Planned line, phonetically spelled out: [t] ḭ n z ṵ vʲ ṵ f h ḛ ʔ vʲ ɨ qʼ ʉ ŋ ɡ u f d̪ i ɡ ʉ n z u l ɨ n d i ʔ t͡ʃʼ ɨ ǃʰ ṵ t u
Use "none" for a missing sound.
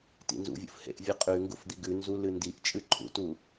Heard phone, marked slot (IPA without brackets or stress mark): t